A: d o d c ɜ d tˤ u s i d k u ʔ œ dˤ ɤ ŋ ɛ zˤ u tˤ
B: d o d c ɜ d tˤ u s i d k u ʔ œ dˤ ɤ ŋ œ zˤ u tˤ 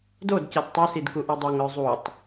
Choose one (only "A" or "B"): B